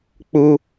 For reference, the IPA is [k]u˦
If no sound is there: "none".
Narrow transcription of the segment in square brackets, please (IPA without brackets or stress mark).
k͡p